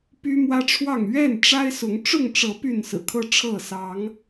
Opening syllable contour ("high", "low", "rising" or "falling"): high